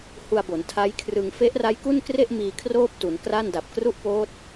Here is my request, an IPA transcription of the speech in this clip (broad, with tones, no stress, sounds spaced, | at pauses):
h u˧ a̯ b o˩˦ n tʰ a˦˥ j kʰ r ɯ˧ ŋ f e˦˥ ʔ r a˦˥ j k u˥˩ n k r e˥˩ ʔ m iː˧ kʰ r oː˥˩ p̚ t u˩˦ n k r a˥˩ n d a˨˩ p̚ k r u˥˩ ʔ p oː˦˥ t̚